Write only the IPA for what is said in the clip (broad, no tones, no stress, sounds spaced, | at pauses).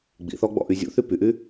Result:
ɡ͡b ḭ θ ɔ ɡ͡b ɔ̰ ʔ y zʲ ṵ θ y p y ʔ yː